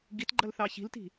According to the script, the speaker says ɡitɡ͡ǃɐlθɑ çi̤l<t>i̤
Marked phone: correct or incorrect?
correct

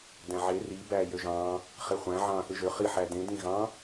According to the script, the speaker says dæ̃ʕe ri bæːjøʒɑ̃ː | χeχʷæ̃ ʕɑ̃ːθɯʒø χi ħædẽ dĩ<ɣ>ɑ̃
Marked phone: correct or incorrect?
correct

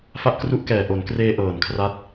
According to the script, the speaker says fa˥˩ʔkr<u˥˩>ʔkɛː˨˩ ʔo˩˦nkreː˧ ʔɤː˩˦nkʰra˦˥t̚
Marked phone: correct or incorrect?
correct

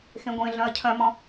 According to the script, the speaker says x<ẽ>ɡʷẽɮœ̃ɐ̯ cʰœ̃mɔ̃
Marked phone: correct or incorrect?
correct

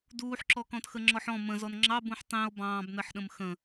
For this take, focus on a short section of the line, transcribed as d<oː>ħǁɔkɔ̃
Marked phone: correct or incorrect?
incorrect: uː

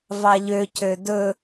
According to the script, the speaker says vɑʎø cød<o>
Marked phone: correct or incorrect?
incorrect: ɵ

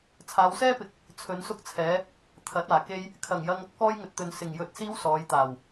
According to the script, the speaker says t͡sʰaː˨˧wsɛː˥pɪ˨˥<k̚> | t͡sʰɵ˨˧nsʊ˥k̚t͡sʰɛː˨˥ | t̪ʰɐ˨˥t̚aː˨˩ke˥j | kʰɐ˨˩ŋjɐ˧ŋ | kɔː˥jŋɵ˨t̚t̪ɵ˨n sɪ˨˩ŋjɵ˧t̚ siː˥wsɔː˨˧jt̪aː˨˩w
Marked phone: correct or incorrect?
correct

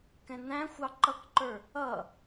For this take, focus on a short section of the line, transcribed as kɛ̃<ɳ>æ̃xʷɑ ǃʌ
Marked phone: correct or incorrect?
incorrect: n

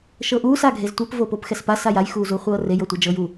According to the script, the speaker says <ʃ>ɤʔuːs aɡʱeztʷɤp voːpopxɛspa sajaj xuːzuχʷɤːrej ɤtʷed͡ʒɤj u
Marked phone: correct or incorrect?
correct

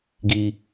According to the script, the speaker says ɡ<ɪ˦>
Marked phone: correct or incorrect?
incorrect: i˦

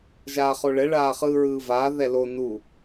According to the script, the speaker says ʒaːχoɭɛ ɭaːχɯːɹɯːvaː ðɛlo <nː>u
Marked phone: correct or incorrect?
incorrect: n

